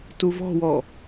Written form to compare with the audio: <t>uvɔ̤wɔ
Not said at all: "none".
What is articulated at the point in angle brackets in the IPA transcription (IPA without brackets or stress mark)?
t